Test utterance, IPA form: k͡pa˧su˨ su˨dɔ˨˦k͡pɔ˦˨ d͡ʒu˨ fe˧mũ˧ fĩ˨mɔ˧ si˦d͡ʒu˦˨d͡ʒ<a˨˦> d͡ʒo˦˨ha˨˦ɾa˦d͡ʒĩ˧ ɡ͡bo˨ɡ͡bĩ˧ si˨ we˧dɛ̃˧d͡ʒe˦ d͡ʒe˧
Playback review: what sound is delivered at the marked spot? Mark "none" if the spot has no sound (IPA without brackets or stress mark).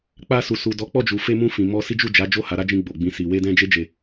a˨˦